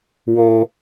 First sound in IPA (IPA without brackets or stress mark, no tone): w